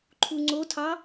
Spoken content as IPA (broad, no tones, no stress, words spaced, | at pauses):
ǃʰuŋ͡ǀotʰɑ